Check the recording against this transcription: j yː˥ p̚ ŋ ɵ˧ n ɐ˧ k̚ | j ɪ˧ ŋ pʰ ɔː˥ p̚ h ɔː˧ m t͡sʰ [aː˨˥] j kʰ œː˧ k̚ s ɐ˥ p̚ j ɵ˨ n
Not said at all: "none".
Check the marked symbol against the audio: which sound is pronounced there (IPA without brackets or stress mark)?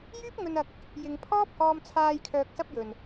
aː˧